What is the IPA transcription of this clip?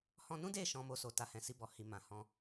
h ɔ̃˧ n ũ˦ d e˦˨ ʃ ɔ̃˧ m o˧ s o˨ t a˨ h ɛ̃˨ s i˧ b ɔ˨ h i˨ m ã˨ h ɔ̃˧

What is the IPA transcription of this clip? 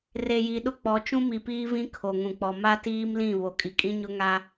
r e˨ j i˨ ɗ ʊ˦ k͡p ɔ˨˦ t͡ʃ ũ˦ m i˨ p iː˦ v ĩ˦ kʰ o˨ ŋ ũ˨ k͡p ɔ˨ m a˦ t iː˦ m l ĩ˦˨ β o˨ kʼ i˨ kʼ ĩ˦ ɲ ʊ˦ ŋ a˦

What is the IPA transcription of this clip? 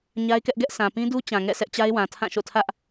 ɲ a˦ ɪ̯ k ɛ˦ ʔ ɡ ɛ˦ ʔ s ã˨ p ĩ˦ d u˦ t͡ɕ ã˨ ŋ ɛ̰˦˨ sʰ ɛ˦ ʔ t͡ɕ a˦ ɪ̯ w ã˨ tʰ ã˦˨ ʃ o̰˦˨ tʰ ä˦ ʔ

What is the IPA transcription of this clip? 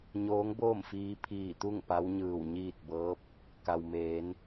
ɲ oː˧˥ ŋ b oː˥˨ m f iː˧ pʰ iː˧˩ t̪ u˥˨ ŋ p a˧˥ w ɲ ɯː˧˩ w ɲ iː˥˨ t̚ b ɤː˧˥ p̚ | k a˩ w m eː˩˧ n

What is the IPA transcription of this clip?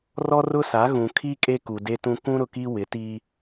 r ɔ˦ r ʊ˦ s a˨˦ ɣ ũ˨ kʰ i˦ kʼ e˦ k u˨ d e˦ t ũ˦ k ũ˦ ɾ ʊ˨ k i˦ w ɪ˨˦ t iː˦

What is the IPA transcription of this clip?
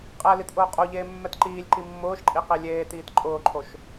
qʼ ɛ l i t ʔ ʊː qʼ o ʎ eː mː ɛ t ǃ iː lʲ ǃ i mː ʊː ʃ ǃʼ i q i lʲ eː t iː t ǃʼ ʊː ǃʰ o ʃ

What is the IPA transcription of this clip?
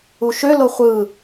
u ʃ ø l o χʷ ɯ

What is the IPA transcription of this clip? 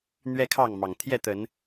n̪ ɥ ɛ˦ kʰ ɑ˥˨ ŋ m ɑ˨˩ ŋ t̪ʰ j ɛ˥˨ t̪ ə˨˦ n

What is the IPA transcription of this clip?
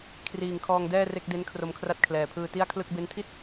kʰ r iː˨˩ ŋ kʰ ɔː˧ ŋ d ɛː˥˩ r e˥˩ k̚ d e˦˥ n kʰ r o˧ m kʰ r a˦˥ t̚ kʰ l ɛː˨˩ pʰ ɯː˧ t i˥˩ a̯ kʰ l ɯ˥˩ k̚ b e˦˥ n tʰ i˥˩ t̚

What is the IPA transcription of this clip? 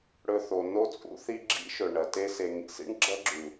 ɽ ɵ˧ θ o˨ n o˧ t͡sʼ ṵ˧ θ i˧ ɡ͡ǁ ḭ˦ ʃ ɵ˨ ɳ ɐ˨ t e˧ s e˨ ŋ ḭ˨ s ḭ˦ ɳ ɡ͡ǁ ɐ˦ ɡ͡ǁ ʉ˨

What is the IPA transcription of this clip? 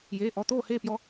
j eː˩˧˩ ʔ ɔ˩˧˩ t̪ oː˥˨ h eː˥˨ p j ɔ˧

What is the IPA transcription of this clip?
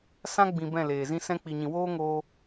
s ã˦ ɡ͡b ĩ˨ b ɛ̃˦˨ l eː˨ z ĩ˦ s ɛ̃˦ k͡p i˨ ɲ ĩ˨ w oː˦ ŋ oː˦

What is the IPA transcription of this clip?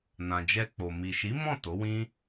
n ã˨ d͡ʒ ɛ˧ k͡p o˨ m i˨ ʃ i˨˦ m ɔ̃˦˨ t o˨˦ w ĩ˦

